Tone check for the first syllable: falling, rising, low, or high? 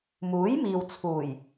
rising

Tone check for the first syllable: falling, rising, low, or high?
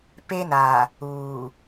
high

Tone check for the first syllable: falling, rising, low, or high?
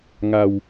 low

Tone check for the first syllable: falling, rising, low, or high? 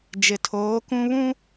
low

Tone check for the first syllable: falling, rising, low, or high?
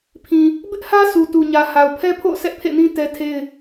low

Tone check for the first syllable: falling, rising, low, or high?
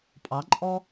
rising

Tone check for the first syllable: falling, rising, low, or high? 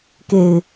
low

